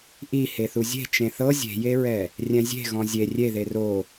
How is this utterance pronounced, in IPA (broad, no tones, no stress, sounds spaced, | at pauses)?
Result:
ʔ i h e θ u zʲ e̤ t͡ʃ ẽ θ ɤ zʲ e̤ j e ɹ ɛ | rʲ ɛ̃ zʲ e̤ ɣ ɔ̃ zʲ e rʲ e ð e r o